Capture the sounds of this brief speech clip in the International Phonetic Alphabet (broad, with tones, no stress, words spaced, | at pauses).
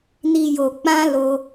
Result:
ni˨jo˨ k͡pã˧ lo˧